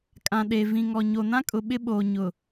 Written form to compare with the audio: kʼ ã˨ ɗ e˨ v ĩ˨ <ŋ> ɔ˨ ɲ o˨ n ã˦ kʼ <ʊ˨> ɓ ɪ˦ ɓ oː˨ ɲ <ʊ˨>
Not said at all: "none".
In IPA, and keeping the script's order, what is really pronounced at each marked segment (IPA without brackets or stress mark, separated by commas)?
ŋ, ʊ˨, ʊ˨